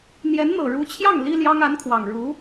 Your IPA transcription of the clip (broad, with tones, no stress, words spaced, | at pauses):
n̪jɛ˧˥nn̪ɤ˨˩ɻu˧˥t͡ɕʰjɑ˥˩ŋ li˥ljɑ˥ŋ a˧˥nkʰwɑ˨˩ŋɻu˧˥